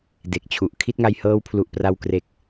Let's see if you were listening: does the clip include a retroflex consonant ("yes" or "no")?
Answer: no